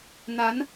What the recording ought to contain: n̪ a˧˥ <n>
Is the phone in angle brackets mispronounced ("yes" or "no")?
no